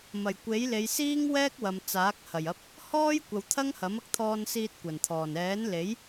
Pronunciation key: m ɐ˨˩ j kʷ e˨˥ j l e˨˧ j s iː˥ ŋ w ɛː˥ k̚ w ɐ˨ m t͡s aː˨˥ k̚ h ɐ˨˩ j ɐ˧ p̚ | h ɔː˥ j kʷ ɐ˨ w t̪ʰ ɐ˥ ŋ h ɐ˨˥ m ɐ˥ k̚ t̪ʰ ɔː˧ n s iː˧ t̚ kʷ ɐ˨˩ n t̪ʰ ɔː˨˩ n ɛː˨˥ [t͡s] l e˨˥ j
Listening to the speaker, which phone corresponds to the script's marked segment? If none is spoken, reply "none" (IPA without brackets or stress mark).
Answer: n